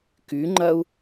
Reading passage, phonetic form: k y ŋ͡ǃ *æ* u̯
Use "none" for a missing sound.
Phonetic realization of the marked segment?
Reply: ɐ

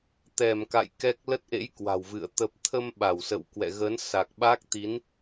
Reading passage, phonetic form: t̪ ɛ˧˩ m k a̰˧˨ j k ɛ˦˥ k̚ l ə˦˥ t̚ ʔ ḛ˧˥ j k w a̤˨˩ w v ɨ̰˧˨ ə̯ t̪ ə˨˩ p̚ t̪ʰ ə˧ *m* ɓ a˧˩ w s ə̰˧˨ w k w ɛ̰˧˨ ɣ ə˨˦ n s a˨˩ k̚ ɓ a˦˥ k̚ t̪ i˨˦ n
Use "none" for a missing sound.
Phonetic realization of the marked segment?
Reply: m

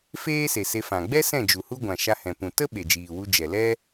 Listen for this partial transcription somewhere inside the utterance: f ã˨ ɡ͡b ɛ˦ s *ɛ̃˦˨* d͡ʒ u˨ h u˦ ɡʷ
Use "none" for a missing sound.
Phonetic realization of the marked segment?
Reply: ɛ̃˦˨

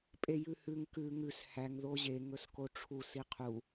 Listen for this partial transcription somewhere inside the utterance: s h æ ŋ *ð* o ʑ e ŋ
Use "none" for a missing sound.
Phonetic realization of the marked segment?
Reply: ð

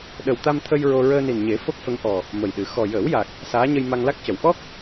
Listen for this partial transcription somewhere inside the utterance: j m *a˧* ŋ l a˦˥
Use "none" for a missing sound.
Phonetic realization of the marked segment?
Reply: a˧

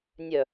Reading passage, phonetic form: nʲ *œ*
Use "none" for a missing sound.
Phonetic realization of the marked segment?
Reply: œ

